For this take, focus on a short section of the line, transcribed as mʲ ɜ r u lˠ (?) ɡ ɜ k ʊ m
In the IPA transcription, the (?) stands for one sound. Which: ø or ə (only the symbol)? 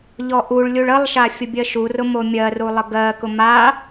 ə